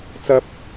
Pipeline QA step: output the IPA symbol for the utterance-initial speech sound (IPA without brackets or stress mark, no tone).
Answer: t͡s